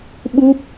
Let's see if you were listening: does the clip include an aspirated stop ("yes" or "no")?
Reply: no